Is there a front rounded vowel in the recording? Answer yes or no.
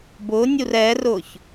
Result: no